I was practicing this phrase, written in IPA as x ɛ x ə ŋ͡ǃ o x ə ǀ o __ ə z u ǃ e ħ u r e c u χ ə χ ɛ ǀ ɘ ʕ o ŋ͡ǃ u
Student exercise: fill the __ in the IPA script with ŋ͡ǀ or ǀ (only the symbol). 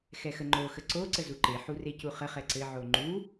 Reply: ǀ